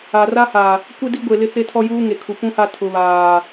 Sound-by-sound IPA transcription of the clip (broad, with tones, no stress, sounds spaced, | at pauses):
a˨ r a˦ h a˨ | kʷ e˦ d i˦ ɡʷ e˨ l ɪ˦ t͡s e˦ tʰ ɔ˦ j uː˦ ŋ e˨ kʰ u˨ p ũ˦ h a˦ tʰ ʊ˨ β aː˨